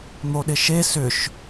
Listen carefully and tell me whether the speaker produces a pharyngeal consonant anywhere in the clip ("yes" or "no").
no